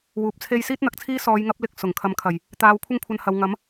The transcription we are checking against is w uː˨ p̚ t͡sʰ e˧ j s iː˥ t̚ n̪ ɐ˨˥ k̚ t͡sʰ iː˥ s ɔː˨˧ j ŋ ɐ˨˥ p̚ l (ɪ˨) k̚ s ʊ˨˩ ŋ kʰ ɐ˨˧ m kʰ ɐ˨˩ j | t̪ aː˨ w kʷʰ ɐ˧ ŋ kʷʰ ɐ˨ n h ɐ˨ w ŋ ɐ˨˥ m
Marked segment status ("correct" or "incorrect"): correct